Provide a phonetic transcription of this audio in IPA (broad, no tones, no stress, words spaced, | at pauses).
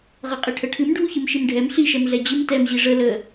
ʁɤqʼiʈʰəʈʰɨm ɖʱuçɨmʃimɖʱɛm ɬi ʃɛmɮɛd͡ʑɨm tɛm ʑiʐə lə